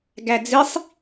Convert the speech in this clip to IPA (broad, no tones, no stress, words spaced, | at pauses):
ɡæd͡zisˤ